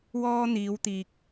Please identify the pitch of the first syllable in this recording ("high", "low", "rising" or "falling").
high